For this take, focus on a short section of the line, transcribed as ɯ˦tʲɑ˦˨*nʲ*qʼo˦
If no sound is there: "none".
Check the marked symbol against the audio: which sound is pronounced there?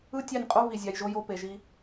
nʲ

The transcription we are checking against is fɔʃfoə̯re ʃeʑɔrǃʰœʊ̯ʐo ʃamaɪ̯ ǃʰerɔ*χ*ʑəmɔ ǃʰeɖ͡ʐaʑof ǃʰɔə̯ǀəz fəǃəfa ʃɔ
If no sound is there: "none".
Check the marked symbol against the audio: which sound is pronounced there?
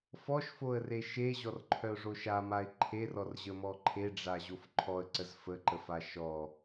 r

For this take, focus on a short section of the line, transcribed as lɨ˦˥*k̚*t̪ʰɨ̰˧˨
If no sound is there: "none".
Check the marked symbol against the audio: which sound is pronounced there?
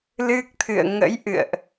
k̚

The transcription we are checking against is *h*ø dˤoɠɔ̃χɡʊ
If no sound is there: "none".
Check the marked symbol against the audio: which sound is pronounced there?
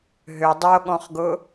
ɦ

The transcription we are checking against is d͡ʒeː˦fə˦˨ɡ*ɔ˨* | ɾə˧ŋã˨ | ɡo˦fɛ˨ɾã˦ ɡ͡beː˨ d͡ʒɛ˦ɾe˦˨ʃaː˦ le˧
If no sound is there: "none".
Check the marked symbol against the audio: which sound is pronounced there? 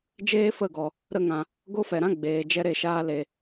ɔ˨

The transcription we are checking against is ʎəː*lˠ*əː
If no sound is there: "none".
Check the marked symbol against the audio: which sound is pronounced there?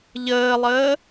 lˠ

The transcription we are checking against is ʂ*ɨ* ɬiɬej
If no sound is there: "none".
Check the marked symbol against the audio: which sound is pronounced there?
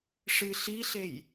ɨ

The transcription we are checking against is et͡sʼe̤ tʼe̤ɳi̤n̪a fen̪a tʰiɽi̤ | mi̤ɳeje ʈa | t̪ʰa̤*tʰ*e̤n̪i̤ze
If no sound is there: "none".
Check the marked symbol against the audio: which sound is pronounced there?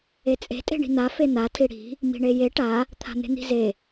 n̪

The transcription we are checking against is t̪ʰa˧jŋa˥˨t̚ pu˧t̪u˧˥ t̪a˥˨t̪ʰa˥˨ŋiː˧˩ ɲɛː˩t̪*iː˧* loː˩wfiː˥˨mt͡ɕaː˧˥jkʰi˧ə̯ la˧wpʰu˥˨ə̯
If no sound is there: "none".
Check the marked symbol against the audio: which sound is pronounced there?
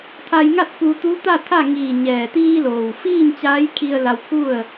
iː˧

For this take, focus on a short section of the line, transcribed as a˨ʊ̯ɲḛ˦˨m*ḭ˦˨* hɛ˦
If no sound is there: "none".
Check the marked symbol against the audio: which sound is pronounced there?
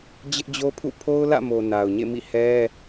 ḭ˦˨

